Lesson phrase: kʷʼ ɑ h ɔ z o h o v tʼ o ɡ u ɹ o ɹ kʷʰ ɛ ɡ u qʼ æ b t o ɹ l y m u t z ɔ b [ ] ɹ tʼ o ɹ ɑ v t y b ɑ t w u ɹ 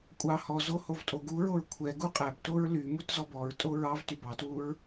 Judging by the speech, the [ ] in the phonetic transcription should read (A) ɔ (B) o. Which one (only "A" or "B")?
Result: A